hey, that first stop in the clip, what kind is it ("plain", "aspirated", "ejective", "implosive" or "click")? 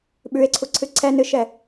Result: implosive